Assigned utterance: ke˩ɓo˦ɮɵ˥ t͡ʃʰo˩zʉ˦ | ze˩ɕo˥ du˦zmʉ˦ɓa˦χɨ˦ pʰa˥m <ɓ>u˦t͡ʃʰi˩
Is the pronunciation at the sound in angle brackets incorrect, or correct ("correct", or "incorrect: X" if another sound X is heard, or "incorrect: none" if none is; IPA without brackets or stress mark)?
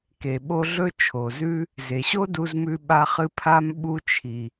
correct